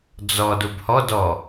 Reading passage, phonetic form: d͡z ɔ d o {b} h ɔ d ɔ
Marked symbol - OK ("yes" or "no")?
yes